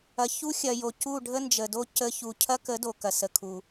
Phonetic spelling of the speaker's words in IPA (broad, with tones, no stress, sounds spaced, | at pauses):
ɐ˨ ç u˦ xʲ ɐ˨ j o˨ c u˦˨ ɖʱ ə˦ n d͡ʒ ə˨ d o˦ c ə˧ ç u˨ cʰ ɐ˦ k ə˨˦ d o˨ k ɐ˨ s ə˨ kʰ u˨